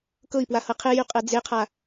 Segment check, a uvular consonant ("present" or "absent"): present